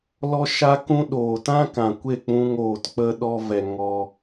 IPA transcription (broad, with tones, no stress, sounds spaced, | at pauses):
l ɔ˦ ʃ a˦ k ũ˦ ɗ oː˨ t ã˦ k ã˨ kʷ e˦˨ k͡p ũ˦ ŋ oː˨ t k͡p ə˧ ɗ ɔ˧ v ɛ˨ ŋ ɔ˧